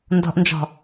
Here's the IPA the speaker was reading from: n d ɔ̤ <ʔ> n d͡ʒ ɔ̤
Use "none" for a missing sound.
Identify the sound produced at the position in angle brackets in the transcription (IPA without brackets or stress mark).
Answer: ʔ